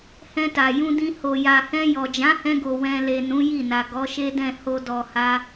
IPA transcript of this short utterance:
h ɛ̃˧ t a˨ j ũ˧ d ĩ˧ h o˨ j a˨ h ɛ̃˧ j ɔ˨ d͡ʒ ã˨˦ h ɛ̃˧ ɡ o˨ w ɛ̃˨ l e˨ n ũ˨˦ j i˦˨ n a˨ ɡ ɔ˨˦ ʃ e˦ d ɛ̃˦˨ h o˧ d ɔ˨ h a˧

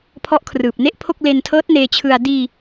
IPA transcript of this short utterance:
pʰ ɔ˦˥ ʔ kʰ r ɯː˨˩ p̚ n e˥˩ ʔ pʰ o˥˩ k̚ l e˧ n tʰ ɤː˦˥ t̚ n eː˧ t͡ɕʰ ɯ˧ a̯ d iː˧

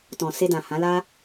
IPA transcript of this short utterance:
t ɔ̃˨ s e˧ d ã˨ h ã˨˦ l a˦

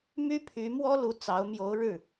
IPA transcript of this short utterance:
m y˥ pʰ y˧˥ m w ɔ˥ l u˧˥ t͡s ɑ˧˥ ʊ̯ m j o˧˥ ʊ̯ ɻ ɻ̩˥˩

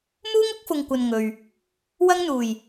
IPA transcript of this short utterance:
m uː˥ ŋ ʊ˥ k̚ f ʊ˨ ŋ kʷ ɐ˨ n ŋ ɵ˨ ɥ | w ɐ˧ ŋ n̪ uː˨˩ j

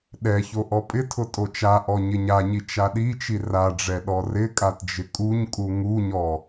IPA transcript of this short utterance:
ɗ ɛ ç o ʔ ɔ pʼ ɪ tʰ ʊ tʼ o t͡ʃ a ʔ ɔ ɲ ɪ ɲ a ɲ i t͡ʃ a ɗ i t͡ʃ i r a ɖ͡ʐ ɛ ɗ ɔ r ɪ kʼ a t d͡ʒ ɪ kʼ u ɲ kʼ u ŋ u ɲ ɔ

